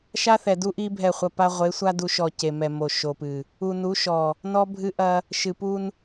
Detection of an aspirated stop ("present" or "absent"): absent